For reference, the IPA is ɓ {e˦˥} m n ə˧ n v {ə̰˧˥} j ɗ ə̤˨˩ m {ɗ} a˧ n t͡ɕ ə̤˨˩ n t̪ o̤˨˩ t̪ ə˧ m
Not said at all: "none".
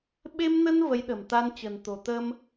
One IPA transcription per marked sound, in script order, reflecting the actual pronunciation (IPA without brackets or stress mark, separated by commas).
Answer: e˧, ə˨˦, t̪